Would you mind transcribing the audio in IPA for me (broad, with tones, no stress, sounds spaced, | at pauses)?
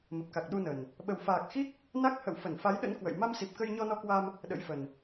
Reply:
m ə˨˩ p̚ k a˨˩ k̚ ɗ u˧ n ə˨˩ n | ɓ ə˨˩ w f aː˨˩ k̚ x i˦˥ k̚ | n a˦˥ k̚ h ə̰˧˨ w f ə˧˩ n f a˨˦ j ɗ ə̰˧˥ n k w ə̰˧˨ j m a˧ m s i˨˩ p̚ k ə˧ j ɲ ɔ˧ n ɔ˧ k w a˧ m | ɗ ə̰˧˥ j f ə˨˩ n